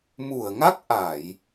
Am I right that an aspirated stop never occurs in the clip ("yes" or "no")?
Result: yes